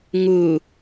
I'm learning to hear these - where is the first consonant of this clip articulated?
velum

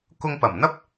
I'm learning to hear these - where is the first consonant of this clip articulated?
velum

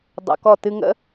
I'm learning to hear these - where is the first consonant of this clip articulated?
tongue tip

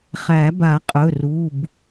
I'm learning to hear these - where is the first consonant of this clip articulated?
uvula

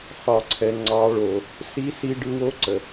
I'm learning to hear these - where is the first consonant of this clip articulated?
uvula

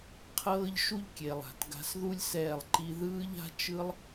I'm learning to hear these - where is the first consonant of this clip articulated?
uvula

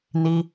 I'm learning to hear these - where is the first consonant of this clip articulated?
tongue tip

